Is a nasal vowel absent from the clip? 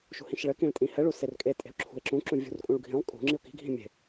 no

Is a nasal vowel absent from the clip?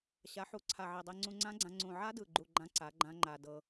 no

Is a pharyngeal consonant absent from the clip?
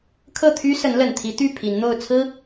yes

